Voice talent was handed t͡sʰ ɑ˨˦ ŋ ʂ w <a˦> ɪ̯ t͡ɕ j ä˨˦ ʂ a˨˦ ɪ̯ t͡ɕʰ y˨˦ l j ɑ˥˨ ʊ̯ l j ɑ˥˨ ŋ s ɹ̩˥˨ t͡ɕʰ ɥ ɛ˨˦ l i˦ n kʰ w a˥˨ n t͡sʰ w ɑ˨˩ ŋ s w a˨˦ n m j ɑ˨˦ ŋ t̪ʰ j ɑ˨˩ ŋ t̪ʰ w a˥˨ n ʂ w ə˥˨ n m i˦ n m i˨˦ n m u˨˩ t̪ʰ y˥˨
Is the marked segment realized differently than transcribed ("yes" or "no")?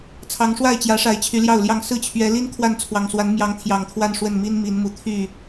yes